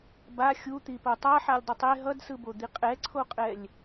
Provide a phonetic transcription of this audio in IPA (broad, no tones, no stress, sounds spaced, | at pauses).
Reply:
b a xʲ u t̪ i p o tˤ a ħ a lʲ dˤ i tˤ e ɦ ʌ d s ɯ b o d̪ i qʼ ɛ ǀʰ o qʼ ɛ lʲ